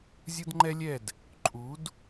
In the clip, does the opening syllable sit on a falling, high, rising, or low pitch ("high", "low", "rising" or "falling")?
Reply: high